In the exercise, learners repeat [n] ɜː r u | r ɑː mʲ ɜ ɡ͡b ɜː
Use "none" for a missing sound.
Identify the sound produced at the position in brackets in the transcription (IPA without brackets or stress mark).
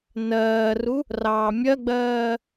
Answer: n